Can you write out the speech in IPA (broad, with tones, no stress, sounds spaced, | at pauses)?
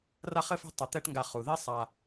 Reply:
r a˥ χ ɘ˥ f ɛ̤˥ tˤ ɐ˧ t̪ ɛ˥ ʈ ŋ ɡ a˧ χ u˩ ð i˥ sˤ a˧